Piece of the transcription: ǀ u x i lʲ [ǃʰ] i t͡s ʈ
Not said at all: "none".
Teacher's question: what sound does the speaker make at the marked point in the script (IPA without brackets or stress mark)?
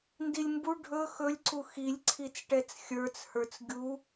ǀʰ